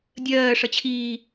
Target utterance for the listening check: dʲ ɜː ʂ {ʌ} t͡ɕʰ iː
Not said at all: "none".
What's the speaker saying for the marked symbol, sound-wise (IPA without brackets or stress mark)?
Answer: ʌ